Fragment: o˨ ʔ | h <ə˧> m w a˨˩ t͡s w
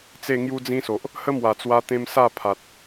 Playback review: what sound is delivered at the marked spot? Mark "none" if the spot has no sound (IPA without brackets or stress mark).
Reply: ə˦